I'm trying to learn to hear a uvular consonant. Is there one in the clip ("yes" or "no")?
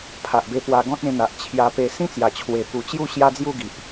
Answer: no